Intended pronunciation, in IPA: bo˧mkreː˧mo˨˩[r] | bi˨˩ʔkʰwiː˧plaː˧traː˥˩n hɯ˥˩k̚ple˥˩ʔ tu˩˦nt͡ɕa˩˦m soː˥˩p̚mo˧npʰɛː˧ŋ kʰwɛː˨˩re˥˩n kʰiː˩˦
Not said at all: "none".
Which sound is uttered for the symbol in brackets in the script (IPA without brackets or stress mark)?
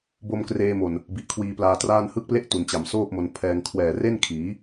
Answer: n